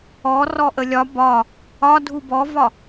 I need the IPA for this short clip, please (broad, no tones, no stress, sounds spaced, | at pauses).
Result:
ɔ r ɔ ʔ ə lʲ ɒ b ɒ | ɒ dʱ u b ɔ v ɒ